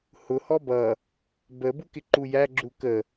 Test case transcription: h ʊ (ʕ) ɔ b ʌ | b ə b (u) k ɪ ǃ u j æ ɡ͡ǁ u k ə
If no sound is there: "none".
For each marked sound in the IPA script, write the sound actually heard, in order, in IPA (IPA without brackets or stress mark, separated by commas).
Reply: h, u